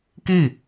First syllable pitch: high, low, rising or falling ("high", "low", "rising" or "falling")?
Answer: falling